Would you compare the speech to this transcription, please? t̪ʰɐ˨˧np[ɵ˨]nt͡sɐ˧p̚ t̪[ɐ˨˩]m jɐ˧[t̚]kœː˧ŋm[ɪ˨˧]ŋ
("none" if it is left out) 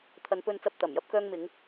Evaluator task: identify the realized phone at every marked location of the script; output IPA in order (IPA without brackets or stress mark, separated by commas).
ɵ˧, ɐ˨˩, p̚, ɪ˨˧